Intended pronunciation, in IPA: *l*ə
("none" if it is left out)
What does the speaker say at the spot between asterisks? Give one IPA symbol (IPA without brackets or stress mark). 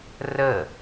r